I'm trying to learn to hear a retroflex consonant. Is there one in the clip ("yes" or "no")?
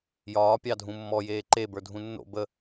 no